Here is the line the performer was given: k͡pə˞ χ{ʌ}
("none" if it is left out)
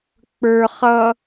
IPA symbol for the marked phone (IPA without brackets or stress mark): ʌ